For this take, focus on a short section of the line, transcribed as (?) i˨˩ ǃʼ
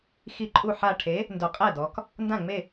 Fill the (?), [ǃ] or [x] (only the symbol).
x